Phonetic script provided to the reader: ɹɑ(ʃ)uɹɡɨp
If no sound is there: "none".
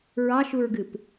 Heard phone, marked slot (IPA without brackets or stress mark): ʃ